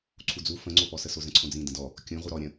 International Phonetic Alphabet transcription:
ǀʰud͡zu fə̃ŋ͡ǀopɔsə sozə̃ǀʰõd͡zĩ də̃dɔ | kʲũ ʁuɾɔ ɾʲə̃

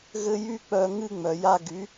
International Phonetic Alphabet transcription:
ɣɘ˦jy˦k͡pœ˧ ŋɨ˦ŋ͡mœ˨ja˧ ɡy˨˦

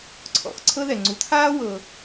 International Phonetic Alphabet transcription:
ǀʰɔ̰˩xǀʰɤ˦ ðɛ˩ŋ͡ǀu˨t̪ʰaː˥ wɤ˨

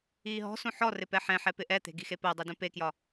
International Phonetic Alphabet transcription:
iːɦɔ̤sũ ħɔrɪ pɛħɛ̃ħɛ pɪʔɛt̪e̤ ɡixepɜdˤi dũpekjɒ

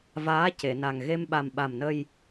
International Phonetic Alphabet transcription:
vaː˧˥ce˨˩˨na˨˩ŋ ɣe˧mɓa˨˩m ɓa˨˩mnə˧j

